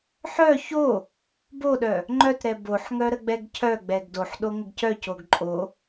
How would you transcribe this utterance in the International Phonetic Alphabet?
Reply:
ħ œ ç o | b o ɗ œ | ŋ͡ǃ œ t ɾ ɛ b o ħ ŋ œ ɾ ə ɡ͡b ɛ ɡ cʰ œ ɡ͡b ɛ ɡ d o ħ ɗ o ŋ ə ɡ c œ c o ɡ ǃʼ o

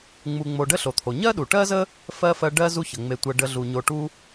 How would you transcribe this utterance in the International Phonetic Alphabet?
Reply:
ŋ͡m u˨ ŋ͡m o˨ ɖ ə˥ ɬ o˩ t̪ʰ o˩ ɲ ɜ˥ ɗ u˩ ʈ ɜ˥ z ə˥ | f ɜ˥ f ɜ˦ ɖ ɜ˥ z u˥ ç ə˩ ŋ͡m e˨ tʷ ɜ˨ ɖ ə˨ ɮ u˩ ɲ o˨ ʈ u˥

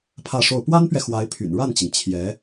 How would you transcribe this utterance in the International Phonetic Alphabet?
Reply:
pʰ ä˥˧ ʂ o˥˩ ʊ̯ p w a˥ n p ɥ ɛ˨ x w a˧˥ ɪ̯ pʰ y̰˨˩ n ɻ a˥˩ n t͡ɕ i˩ ŋ t͡ɕʰ j ɛ˧˥

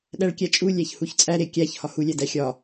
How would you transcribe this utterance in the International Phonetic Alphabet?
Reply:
ɗ æ ɭ kʲ æ t͡ʃʼ u lʲ æ ç h u ç t͡sʼ æ ɾ e kʲ æ ç h ɒ h u lʲ æ d æ xʲ ɒ

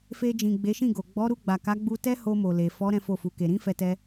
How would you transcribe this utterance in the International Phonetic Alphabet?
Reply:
f e˧ d͡ʒ ĩ˨ ɡ͡b e˨˦ ʃ ĩ˦˨ ɡ o˨ ɡ͡b ɔ˨˦ ɾ u˧ ɡ͡b a˨ k a˨˦ ɡ͡b u˧ t ɛ˦ h o˧ m o˨ l e˨ f ɔ˨˦ ɾ ɛ̃˦ f o˦˨ f u˨˦ k e˧ ɾ ĩ˦ f ɛ˧ t ɛ˧

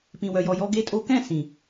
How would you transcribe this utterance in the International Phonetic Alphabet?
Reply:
p ĩ˨ w œ˨ j ɔ˨ j ɔ˧ ɡ e˧ tʼ o˧ k ɛ̃˦˨ s ĩ˨

